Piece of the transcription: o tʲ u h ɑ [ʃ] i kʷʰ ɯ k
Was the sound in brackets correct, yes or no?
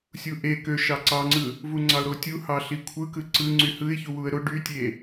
no